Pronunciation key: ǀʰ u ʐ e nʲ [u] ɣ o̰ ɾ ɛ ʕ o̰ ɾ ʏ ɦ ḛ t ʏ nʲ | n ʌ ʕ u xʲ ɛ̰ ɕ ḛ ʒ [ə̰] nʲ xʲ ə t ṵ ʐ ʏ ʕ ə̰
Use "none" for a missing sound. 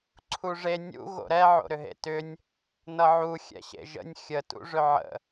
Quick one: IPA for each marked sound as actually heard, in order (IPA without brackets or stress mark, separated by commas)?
ṵ, ə̰